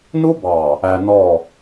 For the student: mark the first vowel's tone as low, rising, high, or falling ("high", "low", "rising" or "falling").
high